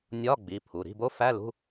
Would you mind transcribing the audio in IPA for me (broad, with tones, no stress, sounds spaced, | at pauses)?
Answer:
nʲ ɒ˧˥˧ ɡ͡b i˩˧˩ pʰ u˩˧˩ ɾ i̤˧˥˧ b o˦˥ f æ˧˥˧ l ṳ˧˥˧